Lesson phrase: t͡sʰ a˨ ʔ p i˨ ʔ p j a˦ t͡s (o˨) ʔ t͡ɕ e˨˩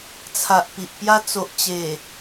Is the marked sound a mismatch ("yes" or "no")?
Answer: no